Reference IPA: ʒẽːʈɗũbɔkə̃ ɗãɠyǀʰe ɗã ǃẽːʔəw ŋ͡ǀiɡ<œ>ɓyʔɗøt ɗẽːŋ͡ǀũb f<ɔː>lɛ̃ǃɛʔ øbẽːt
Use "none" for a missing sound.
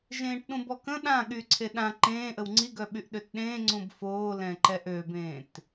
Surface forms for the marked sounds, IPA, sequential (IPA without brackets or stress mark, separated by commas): œ, oː